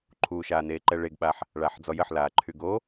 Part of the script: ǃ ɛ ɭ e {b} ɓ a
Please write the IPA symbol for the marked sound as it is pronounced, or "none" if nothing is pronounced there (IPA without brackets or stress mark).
ɡ